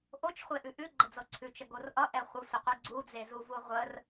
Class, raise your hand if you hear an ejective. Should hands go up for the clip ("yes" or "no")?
no